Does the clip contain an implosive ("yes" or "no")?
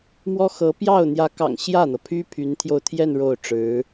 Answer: no